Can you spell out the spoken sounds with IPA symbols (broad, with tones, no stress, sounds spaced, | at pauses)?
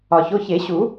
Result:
ɒ˩ ç o˩˧˩ ç e˨˩˦ ɕ u˨˩˦